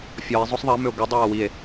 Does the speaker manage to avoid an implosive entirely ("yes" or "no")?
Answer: yes